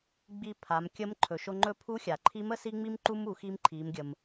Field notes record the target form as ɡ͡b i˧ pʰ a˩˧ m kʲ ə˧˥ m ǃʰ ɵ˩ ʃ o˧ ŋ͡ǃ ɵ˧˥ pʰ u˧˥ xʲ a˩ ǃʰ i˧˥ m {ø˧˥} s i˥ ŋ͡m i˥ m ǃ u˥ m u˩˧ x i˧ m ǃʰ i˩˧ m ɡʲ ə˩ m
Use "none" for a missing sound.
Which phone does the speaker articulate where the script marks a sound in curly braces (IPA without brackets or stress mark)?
ə˧˥